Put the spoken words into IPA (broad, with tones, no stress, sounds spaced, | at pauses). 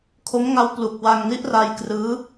kʰ o˦˥ m ŋ a˦˥ w p l u˨˩ k̚ w a˧ ŋ n i˦˥ ʔ r a˧ j k r ɯː˦˥